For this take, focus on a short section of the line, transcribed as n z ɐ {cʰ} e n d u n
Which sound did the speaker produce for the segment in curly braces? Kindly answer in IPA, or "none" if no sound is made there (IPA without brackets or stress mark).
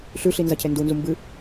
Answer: cʰ